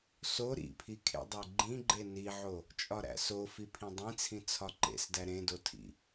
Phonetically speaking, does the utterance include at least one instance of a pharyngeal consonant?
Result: yes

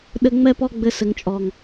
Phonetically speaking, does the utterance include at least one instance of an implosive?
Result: yes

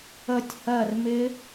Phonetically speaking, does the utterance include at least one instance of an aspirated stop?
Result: no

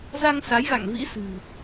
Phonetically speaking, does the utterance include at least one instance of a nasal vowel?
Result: no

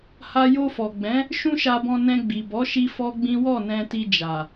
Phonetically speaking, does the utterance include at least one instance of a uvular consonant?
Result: no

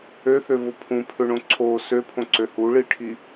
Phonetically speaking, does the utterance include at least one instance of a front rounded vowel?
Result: yes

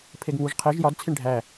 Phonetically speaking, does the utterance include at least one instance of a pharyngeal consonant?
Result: no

